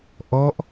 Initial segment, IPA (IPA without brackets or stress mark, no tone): ʔ